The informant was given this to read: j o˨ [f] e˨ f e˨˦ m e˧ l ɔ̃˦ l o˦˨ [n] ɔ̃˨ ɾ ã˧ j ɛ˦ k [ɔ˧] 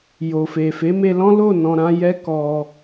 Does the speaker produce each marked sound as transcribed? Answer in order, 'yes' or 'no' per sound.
yes, yes, yes

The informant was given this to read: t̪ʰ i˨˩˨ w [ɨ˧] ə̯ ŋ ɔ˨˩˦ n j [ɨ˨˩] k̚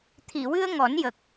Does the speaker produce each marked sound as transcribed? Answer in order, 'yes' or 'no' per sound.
yes, no

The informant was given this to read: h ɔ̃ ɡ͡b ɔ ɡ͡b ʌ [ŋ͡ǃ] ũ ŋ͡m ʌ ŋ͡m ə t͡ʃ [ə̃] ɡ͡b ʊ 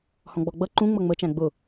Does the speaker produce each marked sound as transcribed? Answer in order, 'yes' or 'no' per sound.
no, no

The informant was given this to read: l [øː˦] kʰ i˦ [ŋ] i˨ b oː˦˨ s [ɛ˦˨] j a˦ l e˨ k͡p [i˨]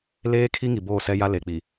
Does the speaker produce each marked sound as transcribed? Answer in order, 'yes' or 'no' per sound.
no, yes, no, yes

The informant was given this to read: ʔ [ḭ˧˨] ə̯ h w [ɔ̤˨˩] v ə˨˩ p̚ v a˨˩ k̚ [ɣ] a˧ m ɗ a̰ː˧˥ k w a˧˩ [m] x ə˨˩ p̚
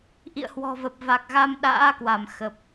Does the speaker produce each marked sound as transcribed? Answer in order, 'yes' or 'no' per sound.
yes, yes, yes, yes

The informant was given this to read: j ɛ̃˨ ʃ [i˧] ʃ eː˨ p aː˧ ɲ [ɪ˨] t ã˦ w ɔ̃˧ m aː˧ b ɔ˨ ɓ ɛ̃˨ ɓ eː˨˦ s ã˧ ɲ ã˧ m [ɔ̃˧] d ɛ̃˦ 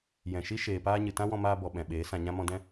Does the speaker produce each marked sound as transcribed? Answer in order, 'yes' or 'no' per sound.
no, no, yes

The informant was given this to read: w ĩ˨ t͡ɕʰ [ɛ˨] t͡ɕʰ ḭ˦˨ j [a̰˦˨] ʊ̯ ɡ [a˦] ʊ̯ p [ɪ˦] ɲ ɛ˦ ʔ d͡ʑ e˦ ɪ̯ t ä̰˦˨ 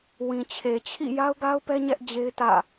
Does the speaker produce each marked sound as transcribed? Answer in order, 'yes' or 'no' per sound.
no, no, yes, no

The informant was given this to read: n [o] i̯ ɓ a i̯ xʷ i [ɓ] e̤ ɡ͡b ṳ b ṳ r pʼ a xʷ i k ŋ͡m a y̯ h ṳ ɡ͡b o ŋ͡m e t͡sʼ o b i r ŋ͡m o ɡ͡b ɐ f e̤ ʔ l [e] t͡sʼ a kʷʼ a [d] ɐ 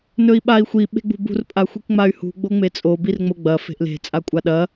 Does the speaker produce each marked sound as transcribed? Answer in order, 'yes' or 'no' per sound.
no, yes, no, no

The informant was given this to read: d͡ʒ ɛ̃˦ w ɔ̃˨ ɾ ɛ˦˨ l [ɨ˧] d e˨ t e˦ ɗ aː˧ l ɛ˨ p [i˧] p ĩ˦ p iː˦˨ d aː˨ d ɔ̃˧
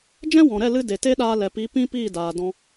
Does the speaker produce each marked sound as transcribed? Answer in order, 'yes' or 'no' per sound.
yes, no

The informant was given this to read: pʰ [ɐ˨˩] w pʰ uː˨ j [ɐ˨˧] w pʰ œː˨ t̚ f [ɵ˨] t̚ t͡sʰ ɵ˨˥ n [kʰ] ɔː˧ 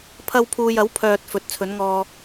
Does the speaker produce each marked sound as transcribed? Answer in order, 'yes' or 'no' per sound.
no, no, no, no

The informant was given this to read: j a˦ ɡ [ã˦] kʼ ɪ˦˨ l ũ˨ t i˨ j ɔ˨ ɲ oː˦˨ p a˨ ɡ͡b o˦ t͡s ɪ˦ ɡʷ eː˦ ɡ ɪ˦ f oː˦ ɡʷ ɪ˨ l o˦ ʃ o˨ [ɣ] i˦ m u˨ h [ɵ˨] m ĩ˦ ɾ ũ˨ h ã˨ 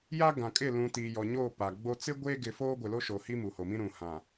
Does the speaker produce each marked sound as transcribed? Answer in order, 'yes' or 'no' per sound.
no, no, no

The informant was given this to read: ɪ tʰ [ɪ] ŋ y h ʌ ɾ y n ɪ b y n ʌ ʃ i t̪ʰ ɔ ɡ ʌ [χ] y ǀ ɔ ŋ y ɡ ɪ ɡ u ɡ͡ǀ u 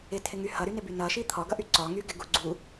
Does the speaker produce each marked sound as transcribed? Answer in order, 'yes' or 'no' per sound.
yes, no

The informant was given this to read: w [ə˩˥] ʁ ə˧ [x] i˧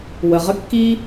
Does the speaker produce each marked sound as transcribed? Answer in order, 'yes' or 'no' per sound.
no, no

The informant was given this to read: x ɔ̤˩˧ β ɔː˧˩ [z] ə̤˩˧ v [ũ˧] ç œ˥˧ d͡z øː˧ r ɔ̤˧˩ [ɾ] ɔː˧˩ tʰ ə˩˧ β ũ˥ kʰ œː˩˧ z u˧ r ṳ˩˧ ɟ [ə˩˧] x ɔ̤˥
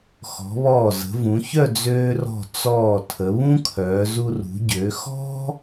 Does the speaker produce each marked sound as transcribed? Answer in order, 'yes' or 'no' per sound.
yes, no, no, no

